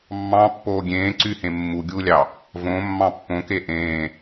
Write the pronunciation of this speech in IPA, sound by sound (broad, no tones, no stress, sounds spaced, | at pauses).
mː ɑ̃ pː oː ɡʲ ẽː ǀ y h ẽ mː u ɡʲ uː lʲ ɑ | v õ mː ɑ̃ pː õ k e ʔ ẽː